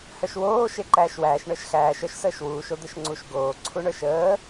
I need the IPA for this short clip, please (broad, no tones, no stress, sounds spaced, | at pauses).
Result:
h œ ʃ w oː ʃ e ǃ æː ʃ w æː ʃ ɳ ə˞ ʃ x æː ʃ œ ʃ s əː ʃ w uː ʃ o d̪ ə ʃ ŋ͡ǀ u ʃ ɡ oː ǀʰ u ɳ ə˞ ʃ əː